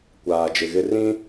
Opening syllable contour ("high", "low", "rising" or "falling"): low